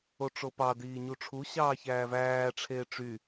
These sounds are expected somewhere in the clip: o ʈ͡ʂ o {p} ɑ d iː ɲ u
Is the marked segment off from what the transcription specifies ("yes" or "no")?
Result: no